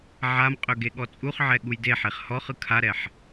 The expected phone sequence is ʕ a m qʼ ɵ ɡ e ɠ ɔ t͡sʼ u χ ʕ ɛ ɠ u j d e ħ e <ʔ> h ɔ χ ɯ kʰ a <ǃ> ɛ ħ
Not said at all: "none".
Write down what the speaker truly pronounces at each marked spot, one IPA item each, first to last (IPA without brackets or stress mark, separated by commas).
χ, ɾ